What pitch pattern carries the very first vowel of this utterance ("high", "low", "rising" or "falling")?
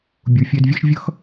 low